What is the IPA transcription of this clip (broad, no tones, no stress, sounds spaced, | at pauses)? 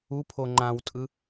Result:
u pʰ o ŋ͡ǃ ã w tʼ ɯ